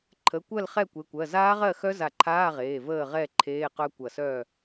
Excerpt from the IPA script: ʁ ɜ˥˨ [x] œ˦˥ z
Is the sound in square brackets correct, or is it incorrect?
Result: correct